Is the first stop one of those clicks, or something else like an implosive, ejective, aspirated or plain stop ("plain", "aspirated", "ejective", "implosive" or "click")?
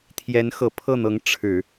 aspirated